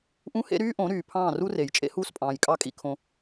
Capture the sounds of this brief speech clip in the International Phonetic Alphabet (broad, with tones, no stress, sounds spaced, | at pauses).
ʔ ũ˦ h ḛ˦ ɾ yː˦ ʔ õ˨˦ ɾ yː˨ pʰ ɑ̃ː˦˨ r u˦ r e˨ j t͡ʃʼ ḛ˦ h uː˦ s pʼ ɑ̃ː˨ j kʼ ɑ˦˨ kʼ ḭ˦ kʰ õ˦